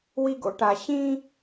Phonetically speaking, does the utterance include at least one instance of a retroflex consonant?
yes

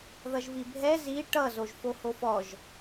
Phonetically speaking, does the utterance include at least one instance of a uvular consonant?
no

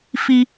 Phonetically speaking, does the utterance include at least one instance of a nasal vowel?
no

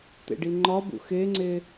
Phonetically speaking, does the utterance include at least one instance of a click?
yes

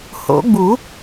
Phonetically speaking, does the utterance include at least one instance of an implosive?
no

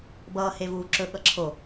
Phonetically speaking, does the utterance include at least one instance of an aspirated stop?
yes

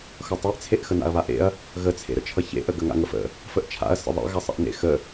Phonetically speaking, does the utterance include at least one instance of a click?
no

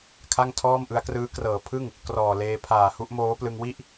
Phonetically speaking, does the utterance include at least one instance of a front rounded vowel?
no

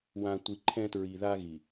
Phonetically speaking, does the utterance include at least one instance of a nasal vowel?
yes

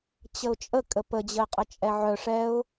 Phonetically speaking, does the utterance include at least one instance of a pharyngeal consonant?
yes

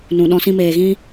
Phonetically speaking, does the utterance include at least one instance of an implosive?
yes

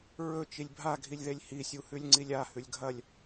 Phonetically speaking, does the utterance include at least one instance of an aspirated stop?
no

